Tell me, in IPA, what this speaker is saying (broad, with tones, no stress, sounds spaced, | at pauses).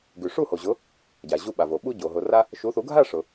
ɡ ʉ˩ ʂ u˥˩ h o˩ ʑ ʊ˩˥ | ɟ a˩ ʑ u˧ ɓ a˩ v o˩ ɓ u˧ ɟ o˩ ɦ ʊ˩ r a˧ | ʃ u˩˥ θ u˩˥ ɡʱ a˥˩ ʂ ʊ˩